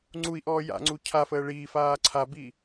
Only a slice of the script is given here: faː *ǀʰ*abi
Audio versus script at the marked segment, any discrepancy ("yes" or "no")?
no